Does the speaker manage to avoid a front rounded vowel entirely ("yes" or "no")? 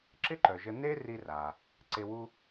no